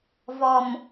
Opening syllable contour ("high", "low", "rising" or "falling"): low